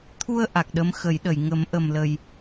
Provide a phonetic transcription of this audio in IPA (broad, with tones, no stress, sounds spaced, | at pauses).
t̪ʰ u˧ ə̯ ʔ a˨˩ k̚ ɗ ə˧˥ m x ə˨˩˦ j ɗ ə˨˩˨ j ŋ ə˨˩˦ m ʔ ə˨˩ m l ə˨˩ j